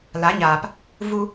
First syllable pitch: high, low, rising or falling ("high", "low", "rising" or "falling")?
rising